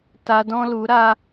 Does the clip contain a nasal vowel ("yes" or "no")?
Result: yes